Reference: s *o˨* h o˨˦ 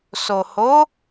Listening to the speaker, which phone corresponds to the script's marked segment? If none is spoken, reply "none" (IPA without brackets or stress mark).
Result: o˨